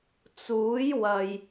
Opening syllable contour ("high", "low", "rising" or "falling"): rising